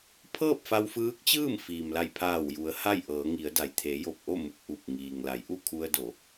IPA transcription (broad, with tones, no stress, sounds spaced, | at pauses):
pʰ ɤː˥˨ p̚ f a˧ w f ɯː˧˥ k̚ t͡ɕ ɯː˥˨ m f iː˩ m l a˧˩ j pʰ aː˧˩ w j u˩˧ ə̯ h a˥˨ j ʔ ɤː˩˧ ŋ i˩˧ ə̯ d a˩ j t̪ʰ e˩˧ j o˧˩ p̚ ʔ o˥˨ m u˧˩ k̚ ʔ u˧˩ p̚ ŋ iː˩ ŋ l a˩˧ j ʔ u˥˨ kʰ u˧ ə̯ d o˩˧